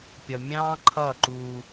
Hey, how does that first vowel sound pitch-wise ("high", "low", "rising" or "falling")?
low